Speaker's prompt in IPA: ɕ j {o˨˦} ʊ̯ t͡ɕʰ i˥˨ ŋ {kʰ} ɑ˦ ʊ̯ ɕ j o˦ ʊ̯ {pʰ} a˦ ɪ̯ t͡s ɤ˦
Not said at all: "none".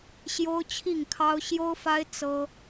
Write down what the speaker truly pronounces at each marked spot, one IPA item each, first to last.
o˦, kʰ, f

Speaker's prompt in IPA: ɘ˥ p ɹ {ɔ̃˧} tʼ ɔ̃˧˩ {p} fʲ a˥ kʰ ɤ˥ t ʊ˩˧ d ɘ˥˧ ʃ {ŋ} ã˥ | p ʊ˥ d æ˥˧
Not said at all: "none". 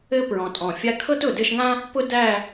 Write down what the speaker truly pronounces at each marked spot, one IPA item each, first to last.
ɔ̃˧, none, ŋ

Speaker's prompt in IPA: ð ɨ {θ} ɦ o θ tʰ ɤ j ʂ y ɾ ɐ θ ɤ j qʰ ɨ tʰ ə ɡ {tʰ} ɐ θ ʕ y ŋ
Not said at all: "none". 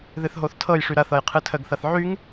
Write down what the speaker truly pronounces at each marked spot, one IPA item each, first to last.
θ, θ

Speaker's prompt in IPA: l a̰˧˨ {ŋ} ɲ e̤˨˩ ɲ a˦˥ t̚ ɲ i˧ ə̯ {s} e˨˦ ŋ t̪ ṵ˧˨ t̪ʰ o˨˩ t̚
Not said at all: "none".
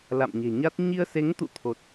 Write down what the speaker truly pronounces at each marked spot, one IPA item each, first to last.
m, s

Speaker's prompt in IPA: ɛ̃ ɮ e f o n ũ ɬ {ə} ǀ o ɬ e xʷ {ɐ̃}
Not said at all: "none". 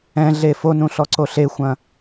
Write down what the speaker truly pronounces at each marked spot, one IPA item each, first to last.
ɔ, ɐ̃

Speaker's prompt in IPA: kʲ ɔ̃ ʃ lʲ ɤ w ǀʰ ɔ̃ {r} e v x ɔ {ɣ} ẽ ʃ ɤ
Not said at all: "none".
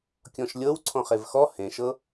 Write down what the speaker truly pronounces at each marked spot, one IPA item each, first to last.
χ, h

